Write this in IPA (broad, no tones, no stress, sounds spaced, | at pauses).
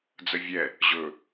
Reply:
d͡z ə vʲ ɛ | ʑ ɵ